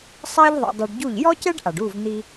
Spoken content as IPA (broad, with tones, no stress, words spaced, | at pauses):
sˤɐː˥ʎðˤɛ̰˧dˤɘ˧ɖɟu˥˩ʎ jɔ˥cɛ˥ɖʔa˩ɖuː˥˩v n̪i˧